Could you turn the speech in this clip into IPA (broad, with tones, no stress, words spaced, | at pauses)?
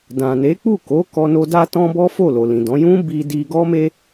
dã˨ne˨˦k͡pu˦˨ko˨˦ kɔ˧no˧ da˦tɔ̃˦bɔ˦ fo˦˨lo˨lĩ˨dɔ̃˨˦ jũ˦ bi˧ di˧ɡɔ˦me˦